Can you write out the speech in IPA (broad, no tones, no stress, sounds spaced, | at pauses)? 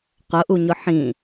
q ʊ ʔ u ɲ ʊ ħ ĩ